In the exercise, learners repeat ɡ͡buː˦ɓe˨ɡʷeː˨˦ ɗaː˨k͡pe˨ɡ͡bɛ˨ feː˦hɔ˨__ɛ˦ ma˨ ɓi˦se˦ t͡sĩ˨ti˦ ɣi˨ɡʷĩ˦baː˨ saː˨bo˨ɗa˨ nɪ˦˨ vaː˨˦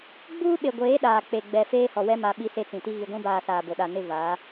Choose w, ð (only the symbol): w